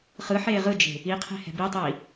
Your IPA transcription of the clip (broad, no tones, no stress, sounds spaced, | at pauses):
χ ɯ ħ eː ʁ ɯ d͡ʒ e̤ | i qʰ e̤ h ɛ̤ b i tˤ iː